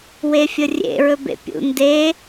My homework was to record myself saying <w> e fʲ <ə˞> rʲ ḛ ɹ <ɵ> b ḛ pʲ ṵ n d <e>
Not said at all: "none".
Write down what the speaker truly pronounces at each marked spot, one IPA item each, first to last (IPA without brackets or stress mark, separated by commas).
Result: w, ə, ɵ, e